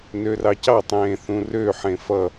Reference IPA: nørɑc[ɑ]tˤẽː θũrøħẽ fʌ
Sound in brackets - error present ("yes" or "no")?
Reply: no